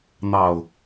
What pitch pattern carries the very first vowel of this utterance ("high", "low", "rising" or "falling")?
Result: low